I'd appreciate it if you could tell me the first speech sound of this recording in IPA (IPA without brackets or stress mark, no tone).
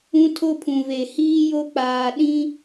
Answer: ũ